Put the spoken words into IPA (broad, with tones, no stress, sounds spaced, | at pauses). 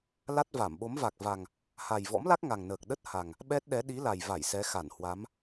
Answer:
l a˦˥ t̚ v a˧˩ m ɓ o˨˦ m v a˨˩ k̚ v a˨˩ ŋ | h a˨˩ j v ɔ̰˧˥ m l a˦˥ k̚ ŋ a˨˩ ŋ n əː˨˩ k̚ ɗ ə˦˥ t̚ h a˨˩ ŋ | ɓ ɛ˦˥ t̚ ɗ ɛ˨˦ ɗ i˨˦ l a˨˩ j v a˧˩ j s ɛ˨˦ x a˧˩ n h w a˨˦ m